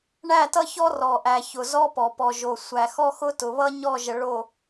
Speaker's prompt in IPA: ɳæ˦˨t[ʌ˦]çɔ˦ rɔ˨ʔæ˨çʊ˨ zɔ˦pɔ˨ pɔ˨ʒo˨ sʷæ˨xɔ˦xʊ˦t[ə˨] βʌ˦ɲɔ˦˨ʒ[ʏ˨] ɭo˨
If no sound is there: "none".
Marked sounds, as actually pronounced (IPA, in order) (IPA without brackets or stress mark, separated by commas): ʌ˦, ʊ˨, ə˨